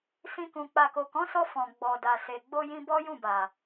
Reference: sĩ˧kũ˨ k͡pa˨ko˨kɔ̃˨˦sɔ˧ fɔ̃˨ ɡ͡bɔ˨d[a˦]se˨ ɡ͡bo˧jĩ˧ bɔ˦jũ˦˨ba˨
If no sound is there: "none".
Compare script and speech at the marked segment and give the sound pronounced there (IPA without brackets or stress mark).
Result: a˨